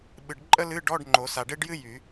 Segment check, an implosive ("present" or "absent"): present